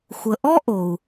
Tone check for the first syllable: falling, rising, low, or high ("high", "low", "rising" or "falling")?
low